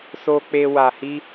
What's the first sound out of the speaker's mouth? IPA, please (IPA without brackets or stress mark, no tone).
s